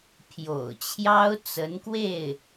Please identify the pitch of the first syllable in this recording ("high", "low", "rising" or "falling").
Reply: low